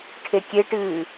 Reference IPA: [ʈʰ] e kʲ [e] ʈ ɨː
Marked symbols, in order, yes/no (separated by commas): yes, yes